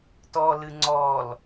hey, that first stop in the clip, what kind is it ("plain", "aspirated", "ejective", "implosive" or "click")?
plain